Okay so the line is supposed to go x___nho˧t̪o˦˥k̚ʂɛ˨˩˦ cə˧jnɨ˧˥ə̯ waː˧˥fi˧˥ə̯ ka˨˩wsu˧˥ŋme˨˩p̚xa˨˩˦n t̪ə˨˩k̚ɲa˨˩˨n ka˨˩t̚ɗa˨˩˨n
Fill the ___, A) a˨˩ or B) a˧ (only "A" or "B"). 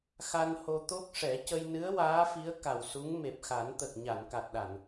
B